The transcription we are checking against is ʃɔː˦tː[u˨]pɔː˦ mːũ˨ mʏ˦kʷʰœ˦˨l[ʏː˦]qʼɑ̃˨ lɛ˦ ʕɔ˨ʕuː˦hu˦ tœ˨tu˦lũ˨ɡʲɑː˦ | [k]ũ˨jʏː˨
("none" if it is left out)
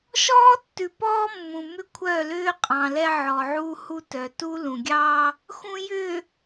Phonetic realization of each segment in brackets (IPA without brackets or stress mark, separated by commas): ʉ˨, ʏː˦, x